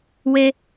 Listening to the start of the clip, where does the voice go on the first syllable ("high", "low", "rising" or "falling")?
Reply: low